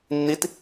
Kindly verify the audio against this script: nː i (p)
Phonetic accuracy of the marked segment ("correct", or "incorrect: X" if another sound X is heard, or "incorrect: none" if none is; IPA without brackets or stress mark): incorrect: t